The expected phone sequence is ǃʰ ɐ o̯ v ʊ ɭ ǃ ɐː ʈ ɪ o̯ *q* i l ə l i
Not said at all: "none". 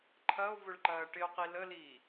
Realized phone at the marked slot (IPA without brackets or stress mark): q